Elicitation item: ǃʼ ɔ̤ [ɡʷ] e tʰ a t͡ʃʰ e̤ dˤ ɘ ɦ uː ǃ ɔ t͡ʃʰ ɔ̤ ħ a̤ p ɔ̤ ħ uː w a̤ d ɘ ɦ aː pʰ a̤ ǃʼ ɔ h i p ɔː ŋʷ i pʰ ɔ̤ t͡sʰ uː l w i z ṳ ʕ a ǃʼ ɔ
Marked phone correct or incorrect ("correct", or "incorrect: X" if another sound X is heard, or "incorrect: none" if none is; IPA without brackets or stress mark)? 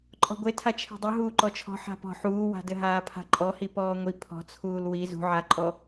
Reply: correct